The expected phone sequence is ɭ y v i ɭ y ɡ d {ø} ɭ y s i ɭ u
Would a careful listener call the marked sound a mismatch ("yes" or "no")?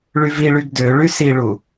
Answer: no